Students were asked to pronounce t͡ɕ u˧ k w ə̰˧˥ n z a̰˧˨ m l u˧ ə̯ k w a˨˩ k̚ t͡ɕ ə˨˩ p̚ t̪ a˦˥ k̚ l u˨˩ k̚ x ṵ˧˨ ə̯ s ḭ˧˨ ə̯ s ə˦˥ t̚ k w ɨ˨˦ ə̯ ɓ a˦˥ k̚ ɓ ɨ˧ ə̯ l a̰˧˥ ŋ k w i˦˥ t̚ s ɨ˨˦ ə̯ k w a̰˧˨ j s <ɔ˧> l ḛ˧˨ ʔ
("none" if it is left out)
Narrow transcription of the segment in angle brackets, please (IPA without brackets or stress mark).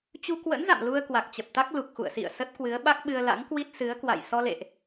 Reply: ɔ˧